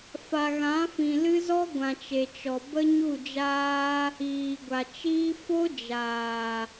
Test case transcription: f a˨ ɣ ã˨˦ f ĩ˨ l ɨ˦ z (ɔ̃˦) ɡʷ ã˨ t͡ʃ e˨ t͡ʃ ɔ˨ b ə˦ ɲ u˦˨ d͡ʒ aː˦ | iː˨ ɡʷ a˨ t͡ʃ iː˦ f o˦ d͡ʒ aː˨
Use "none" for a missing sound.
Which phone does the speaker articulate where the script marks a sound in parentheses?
ɔ˦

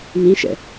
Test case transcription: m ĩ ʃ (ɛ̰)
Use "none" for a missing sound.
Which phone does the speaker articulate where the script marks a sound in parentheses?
ɛ̰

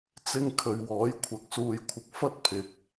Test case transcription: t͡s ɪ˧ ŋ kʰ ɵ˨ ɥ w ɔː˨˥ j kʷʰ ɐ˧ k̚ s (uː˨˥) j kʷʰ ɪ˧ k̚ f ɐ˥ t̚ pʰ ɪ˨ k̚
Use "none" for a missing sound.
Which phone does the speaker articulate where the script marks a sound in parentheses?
uː˧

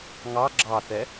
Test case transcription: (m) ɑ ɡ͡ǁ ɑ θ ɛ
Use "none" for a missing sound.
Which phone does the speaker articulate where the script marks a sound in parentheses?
ŋ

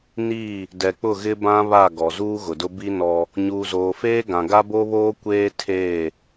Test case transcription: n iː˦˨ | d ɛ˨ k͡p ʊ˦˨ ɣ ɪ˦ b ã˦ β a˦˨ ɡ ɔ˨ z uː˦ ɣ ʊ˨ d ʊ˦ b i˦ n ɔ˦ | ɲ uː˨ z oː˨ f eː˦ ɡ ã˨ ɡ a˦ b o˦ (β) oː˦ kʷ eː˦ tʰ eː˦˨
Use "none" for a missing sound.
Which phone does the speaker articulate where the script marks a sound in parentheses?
β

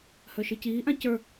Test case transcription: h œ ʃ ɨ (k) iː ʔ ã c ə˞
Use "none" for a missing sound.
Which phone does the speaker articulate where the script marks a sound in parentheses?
c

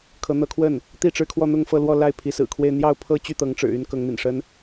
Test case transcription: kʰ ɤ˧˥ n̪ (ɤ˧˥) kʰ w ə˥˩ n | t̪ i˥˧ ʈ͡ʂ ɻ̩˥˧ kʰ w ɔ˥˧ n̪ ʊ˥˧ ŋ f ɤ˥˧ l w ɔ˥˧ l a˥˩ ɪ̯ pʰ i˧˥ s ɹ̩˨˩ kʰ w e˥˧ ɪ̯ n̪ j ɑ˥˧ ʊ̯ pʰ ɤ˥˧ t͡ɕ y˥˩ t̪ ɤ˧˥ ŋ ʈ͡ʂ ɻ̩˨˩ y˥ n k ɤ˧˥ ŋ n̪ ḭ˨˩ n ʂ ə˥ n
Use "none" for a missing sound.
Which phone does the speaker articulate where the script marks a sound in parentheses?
ɤ˧˥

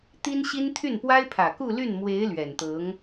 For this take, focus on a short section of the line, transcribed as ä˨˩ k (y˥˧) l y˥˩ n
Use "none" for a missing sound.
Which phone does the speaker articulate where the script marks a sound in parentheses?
u˥˧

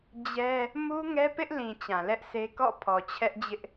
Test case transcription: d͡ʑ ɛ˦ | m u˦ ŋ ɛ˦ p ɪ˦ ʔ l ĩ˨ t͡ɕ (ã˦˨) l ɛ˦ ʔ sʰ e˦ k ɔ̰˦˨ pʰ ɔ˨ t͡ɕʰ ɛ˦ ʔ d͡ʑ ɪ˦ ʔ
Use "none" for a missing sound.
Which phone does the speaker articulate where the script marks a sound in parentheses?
ã˨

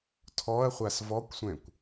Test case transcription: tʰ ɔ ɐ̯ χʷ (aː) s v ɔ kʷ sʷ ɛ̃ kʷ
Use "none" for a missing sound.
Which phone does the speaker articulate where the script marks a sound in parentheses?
a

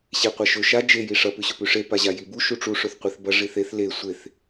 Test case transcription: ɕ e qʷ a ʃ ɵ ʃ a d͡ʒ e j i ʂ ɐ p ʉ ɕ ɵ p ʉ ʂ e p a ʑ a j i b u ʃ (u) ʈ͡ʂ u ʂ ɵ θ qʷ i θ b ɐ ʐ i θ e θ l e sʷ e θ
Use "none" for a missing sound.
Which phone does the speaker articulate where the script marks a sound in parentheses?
u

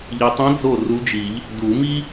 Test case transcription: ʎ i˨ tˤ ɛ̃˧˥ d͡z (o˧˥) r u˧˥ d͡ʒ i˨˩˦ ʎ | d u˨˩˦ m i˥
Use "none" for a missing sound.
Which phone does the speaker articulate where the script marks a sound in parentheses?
o˥˩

